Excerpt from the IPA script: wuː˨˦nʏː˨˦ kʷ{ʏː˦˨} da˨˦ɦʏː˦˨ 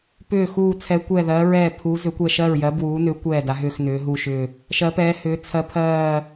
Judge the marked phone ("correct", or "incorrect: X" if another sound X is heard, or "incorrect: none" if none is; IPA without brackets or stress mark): incorrect: ɛː˦˨